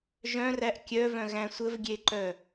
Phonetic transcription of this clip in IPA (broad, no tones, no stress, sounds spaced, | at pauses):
ʒ œ̃ r æ ʔ kʲ œ v œ̃ ɣ æ̃ sʷ ə v ɡʲ e ǃ œ